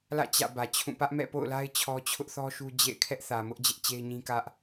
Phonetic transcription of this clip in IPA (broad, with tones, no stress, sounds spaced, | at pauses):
l ä̰˦˨ t͡ɕ ä̰˦˨ b ä˨ t͡ɕʰ ũ˦˨ p ä˦ ʔ m ɛ̰˦˨ p o̰˦˨ ʊ̯ l a˦ ɪ̯ t͡ɕʰ ɔ˦ t͡ɕʰ ʊ˦ ʔ θ ɔ˦ ʃ u˦ d͡ʑ ḛ˦˨ ɪ̯ kʰ ɛ˦ ʔ θ ä˨ m ʊ˦ ʔ d͡ʑ ɪ˦ ʔ t͡ɕ e˦ ɪ̯ ɲ ĩ˦ k ä˦ ʔ